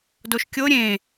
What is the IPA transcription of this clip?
doʃkʲo ɾʲẽ

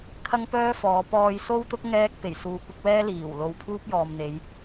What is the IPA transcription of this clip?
kʰɐ˥ŋpœː˥fɔː˨˧ pɔː˧jso˥wt̪ʊ˥k̚ ŋɛː˥k̚ pe˨˩jsuː˨˧kʷɪ˨˥k̚wɛː˥ liː˨˩wlo˨w pʰuː˥p̚jɔː˨mn̪e˨˧j

